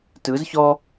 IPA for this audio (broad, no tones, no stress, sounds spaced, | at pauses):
t ɯ z ç ɔ